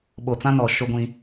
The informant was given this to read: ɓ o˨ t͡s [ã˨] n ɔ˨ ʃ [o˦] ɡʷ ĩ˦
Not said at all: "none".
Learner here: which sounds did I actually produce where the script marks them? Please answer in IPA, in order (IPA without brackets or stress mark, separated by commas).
ã˦, o˦